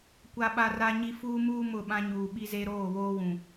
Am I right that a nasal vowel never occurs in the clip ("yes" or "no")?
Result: no